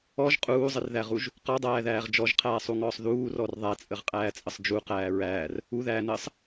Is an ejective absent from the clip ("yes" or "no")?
no